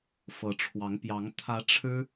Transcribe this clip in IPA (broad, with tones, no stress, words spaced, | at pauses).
fɤ˧˥ʈ͡ʂʰwɑ˧˥ŋpjɑ˧˥ŋ t̪ʰä˧˥ ʈ͡ʂʰɻ̩˥